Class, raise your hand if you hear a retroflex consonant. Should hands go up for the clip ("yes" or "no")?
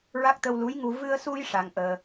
yes